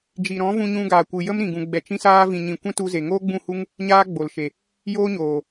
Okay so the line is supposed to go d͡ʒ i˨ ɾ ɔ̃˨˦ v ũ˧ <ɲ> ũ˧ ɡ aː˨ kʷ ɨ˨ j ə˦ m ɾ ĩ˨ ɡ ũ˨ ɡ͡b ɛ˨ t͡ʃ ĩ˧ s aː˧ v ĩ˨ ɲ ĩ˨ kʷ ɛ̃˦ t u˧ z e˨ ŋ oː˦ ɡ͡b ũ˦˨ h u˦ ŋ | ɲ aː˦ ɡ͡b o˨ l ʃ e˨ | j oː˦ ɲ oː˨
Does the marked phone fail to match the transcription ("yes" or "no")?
no